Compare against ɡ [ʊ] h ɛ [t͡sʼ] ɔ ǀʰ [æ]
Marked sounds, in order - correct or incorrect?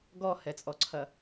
incorrect, correct, incorrect

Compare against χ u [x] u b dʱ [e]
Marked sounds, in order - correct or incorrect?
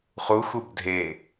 correct, correct

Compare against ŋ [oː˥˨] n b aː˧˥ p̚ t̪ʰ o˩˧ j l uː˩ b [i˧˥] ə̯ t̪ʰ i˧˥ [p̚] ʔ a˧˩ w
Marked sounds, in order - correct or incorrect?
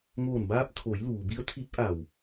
incorrect, correct, correct

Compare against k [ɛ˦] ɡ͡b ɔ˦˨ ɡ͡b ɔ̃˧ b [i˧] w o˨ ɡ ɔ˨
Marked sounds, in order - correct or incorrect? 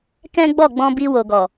incorrect, correct

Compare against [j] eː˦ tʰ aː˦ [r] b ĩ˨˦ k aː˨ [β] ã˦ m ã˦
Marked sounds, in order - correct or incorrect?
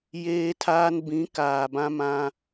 correct, incorrect, incorrect

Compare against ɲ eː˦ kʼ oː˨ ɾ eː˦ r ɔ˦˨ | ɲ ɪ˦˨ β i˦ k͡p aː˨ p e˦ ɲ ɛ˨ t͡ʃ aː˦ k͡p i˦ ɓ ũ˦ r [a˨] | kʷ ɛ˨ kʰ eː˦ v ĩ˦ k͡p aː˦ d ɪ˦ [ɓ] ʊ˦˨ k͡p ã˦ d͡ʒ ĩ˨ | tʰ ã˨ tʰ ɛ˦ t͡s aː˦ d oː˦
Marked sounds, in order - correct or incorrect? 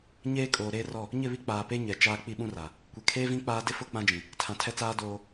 correct, incorrect

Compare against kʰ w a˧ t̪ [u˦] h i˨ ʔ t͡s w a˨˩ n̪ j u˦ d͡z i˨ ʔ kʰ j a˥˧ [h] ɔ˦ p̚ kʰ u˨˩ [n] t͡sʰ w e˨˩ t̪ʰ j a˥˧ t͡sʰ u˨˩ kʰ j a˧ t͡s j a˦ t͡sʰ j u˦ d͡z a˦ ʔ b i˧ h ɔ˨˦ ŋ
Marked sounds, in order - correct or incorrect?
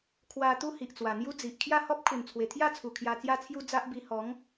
correct, correct, correct

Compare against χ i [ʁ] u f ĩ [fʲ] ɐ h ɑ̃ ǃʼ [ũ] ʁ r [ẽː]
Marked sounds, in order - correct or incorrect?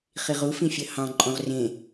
correct, correct, incorrect, incorrect

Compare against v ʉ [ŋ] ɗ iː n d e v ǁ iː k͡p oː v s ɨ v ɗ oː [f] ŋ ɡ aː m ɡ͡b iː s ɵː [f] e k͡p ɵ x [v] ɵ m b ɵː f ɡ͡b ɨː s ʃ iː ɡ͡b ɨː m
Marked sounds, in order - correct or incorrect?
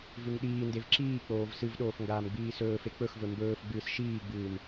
correct, correct, correct, correct

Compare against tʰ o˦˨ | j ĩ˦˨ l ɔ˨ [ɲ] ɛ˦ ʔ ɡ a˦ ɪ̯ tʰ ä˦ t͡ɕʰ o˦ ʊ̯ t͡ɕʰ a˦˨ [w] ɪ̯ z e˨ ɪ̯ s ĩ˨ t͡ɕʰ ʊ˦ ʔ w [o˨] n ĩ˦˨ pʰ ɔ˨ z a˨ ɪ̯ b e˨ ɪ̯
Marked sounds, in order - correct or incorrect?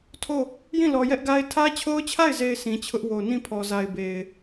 incorrect, incorrect, correct

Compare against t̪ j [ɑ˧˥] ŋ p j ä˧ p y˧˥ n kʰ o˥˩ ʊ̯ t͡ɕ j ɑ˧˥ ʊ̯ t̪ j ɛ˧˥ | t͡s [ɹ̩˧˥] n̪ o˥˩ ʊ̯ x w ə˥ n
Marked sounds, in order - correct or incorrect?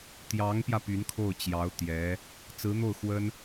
correct, correct

